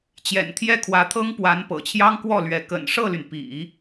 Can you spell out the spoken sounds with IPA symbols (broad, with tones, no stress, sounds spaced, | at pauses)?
t͡ɕ j ɛ̰˨˩ n t̪ʰ j ɛ˥˩ kʰ w ä˧˥ t̪ʰ ɤ˥ ŋ p w a˧˥ n p ɤ̰˨˩ t͡ɕʰ j ɑ˥ ŋ k w ɔ˥˩ l ɥ ɛ˧˥ k ə̰˨˩ n ʂ ɤ˥˩ l y˩ n p ḭ˨˩˦